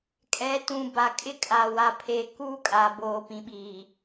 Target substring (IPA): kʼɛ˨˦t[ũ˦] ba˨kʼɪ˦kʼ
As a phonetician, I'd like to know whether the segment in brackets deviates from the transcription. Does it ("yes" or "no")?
yes